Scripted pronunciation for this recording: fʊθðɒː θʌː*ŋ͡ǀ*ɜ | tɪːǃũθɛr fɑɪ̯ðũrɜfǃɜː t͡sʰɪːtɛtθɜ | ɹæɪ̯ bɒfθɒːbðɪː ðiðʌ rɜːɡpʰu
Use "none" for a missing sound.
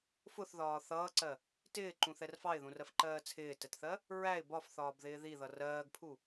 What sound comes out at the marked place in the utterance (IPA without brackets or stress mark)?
ǀ